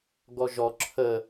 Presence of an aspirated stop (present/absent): present